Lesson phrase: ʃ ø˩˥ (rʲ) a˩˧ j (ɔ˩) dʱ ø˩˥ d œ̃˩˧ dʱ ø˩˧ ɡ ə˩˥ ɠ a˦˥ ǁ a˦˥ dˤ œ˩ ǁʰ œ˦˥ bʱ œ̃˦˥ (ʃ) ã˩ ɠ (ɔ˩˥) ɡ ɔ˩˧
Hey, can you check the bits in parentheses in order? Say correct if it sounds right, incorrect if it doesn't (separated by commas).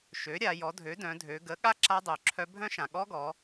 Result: incorrect, incorrect, correct, incorrect